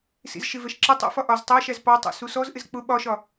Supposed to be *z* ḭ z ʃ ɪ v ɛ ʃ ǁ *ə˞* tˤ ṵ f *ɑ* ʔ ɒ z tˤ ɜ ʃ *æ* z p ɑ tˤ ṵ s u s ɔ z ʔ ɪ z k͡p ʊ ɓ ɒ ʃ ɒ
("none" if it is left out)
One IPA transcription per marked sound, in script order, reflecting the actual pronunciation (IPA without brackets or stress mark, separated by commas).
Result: s, ə, ɒ, æ